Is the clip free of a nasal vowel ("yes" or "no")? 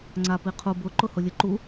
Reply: yes